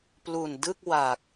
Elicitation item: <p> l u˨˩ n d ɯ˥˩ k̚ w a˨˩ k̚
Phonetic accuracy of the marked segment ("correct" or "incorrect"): correct